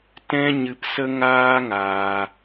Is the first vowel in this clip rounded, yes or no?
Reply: no